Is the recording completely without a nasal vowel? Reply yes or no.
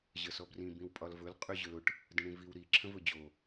no